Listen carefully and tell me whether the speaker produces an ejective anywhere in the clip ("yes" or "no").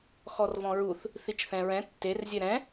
no